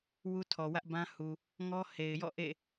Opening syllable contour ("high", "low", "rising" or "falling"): high